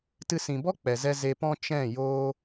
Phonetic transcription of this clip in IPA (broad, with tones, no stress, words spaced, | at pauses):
tɨ˧sĩ˨ bɔ˦ k͡pɛ˨zɛ˧ ze˧pɔ̃˦ t͡ʃɛ̃˦˨joː˦